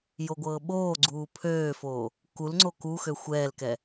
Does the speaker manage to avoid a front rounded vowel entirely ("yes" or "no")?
no